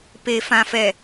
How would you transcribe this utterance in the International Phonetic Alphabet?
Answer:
p e˨ f ã˨ f ɛ˨

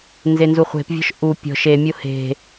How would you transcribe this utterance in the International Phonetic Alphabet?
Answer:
n z e n z u χʷ e̤ p vʲ ɔ̤ ʃ ʔ u pʲ ɔ̤ ʃ e mʲ o h e̤

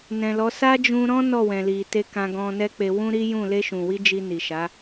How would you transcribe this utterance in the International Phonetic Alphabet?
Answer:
n ɛ̃˨ l ɔ˨˦ s a˦ d͡ʒ ũ˧ ɾ ɔ̃˦ n ɔ˦˨ w ɛ̃˨ l i˨ t e˧ k ã˧ ɡ ɔ̃˧ n ɛ˦ k͡p e˧ w ũ˦ ɾ i˦ j ũ˦˨ l e˧ ʃ ũ˨ w i˧ d͡ʒ i˧ n i˨ ʃ a˨˦

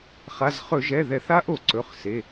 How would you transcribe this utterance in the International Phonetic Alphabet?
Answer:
χ a˩˧˩ z χ ɵ˧˩˧ ʒ ɛ˩˧˩ ð ɛ˧˩˧ θ a˧˥ ʔ o˧˩˧ ǀ ɵ˩˧˩ χ s e˩˧˩

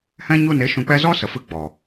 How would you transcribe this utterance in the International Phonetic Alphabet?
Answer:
h ɛ̃˦ ɲ u˦˨ n e˦ ʃ ũ˧ k͡p ɛ˦ z ɔ˦ s ə˨ f ɨ˧ ɡ͡b ɔ˨

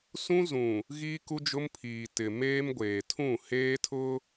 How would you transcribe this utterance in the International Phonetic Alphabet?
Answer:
s ũ˦ z ũ˨ | ɣ iː˦ k u˦ d͡ʒ ʊ˦ m pʰ iː˨ t ɪ˨ m eː˦ m ɡʷ eː˨ tʰ ũ˦˨ h eː˦ tʰ ʊ˦

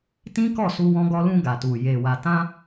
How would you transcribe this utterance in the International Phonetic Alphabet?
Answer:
t ĩ˦ k ɔ˦˨ s u˧ w ɔ̃˧ ɡ ɔ˧ l ũ˧ ɡ a˨ t u˨ j e˨ w a˨ t ã˧

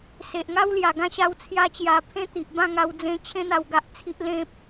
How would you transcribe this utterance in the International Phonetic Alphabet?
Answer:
s e˨ ʔ ŋ a˦ w l j a˨˩ ɡ ã˦ ɕ a˧ w t͡sʰ j a˧ t͡ɕ j a˨˩ pʰ ẽ˦ t̪ i˨ ʔ b ã˥˧ ŋ a˧ w d͡z ẽ˧ t͡ɕʰ ẽ˧ n̪ a˨˩ w ɡ a˨ ʔ t͡sʰ i˨ ʔ l ẽ˨ p̚

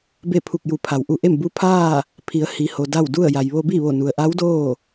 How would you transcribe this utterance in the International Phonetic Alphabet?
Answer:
b e˥˨ pʰ u˧˩ k̚ j u˩˧ pʰ a˩ w ʔ u˧ ʔ e˥˨ m b u˧ pʰ aː˥˨ | pʰ i˩˧ ə̯ h i˩ h o˩ d a˥˨ w d u˥˨ ə̯ j a˩ j ʋ o˧ b i˥˨ ʋ o˧˩ n u˩ ə̯ ʔ a˧˥ w d oː˥˨

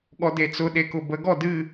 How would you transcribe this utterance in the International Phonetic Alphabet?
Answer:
ɠ ɔ d e t͡s ʊ ɗ e k ʊ b ə ɡ ɔ d ɨ

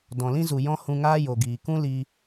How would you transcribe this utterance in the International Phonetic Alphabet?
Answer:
d ɔ̃˨ l ĩ˧ z u˨ j ɔ̃˦ h ũ˧ ŋ aː˦ j o˨ ɡ iː˨ k ũ˦ l iː˧

